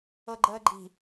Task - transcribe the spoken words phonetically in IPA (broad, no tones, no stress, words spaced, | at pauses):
ɤɡ͡ǃəːɡ͡ǃi̤